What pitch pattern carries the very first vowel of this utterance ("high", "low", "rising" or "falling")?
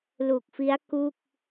low